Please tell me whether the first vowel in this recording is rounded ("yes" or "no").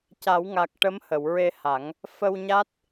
no